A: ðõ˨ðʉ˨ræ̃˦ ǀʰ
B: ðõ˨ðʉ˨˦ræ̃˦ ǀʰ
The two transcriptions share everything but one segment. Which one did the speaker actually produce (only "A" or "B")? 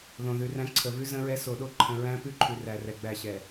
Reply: A